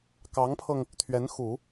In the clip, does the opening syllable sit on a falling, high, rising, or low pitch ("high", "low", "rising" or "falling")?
rising